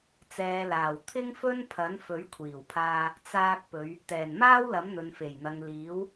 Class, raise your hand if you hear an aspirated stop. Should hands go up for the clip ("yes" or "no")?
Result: yes